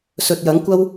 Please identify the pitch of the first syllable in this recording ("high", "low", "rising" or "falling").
low